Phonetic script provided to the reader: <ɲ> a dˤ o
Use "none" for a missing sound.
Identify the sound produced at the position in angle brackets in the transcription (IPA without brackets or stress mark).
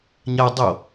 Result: ɲ